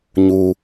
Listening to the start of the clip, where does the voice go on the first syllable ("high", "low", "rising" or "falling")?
low